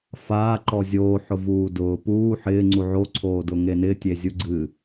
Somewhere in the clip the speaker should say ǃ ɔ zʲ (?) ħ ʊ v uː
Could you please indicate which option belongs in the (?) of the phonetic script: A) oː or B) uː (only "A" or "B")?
A